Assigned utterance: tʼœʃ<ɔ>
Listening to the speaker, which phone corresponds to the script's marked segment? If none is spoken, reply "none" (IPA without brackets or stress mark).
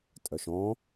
ɔ̃